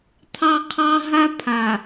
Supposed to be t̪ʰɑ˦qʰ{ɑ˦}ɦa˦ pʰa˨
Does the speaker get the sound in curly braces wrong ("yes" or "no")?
no